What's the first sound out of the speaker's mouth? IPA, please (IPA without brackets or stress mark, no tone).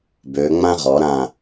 b